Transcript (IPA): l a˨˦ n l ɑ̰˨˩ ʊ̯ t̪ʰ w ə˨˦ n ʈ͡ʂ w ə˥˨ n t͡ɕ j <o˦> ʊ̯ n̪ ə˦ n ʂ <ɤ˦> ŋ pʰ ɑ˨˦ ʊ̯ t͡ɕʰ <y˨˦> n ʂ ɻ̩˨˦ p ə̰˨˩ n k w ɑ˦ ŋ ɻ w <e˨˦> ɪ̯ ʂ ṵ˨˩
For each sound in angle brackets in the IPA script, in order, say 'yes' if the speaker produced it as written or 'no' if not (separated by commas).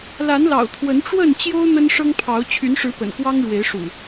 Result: yes, yes, yes, yes